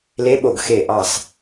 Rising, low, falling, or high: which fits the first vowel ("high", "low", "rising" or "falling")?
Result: rising